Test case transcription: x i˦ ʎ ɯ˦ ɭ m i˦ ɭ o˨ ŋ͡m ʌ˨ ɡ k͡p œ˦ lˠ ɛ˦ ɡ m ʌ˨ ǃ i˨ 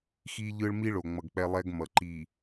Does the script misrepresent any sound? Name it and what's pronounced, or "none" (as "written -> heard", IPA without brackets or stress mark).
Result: œ˦ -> ɛ˦